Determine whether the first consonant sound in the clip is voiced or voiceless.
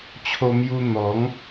voiceless